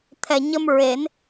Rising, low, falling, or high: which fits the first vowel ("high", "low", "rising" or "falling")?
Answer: low